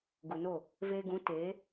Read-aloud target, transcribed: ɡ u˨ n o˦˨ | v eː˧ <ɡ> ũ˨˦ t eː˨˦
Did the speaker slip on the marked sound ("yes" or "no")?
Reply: no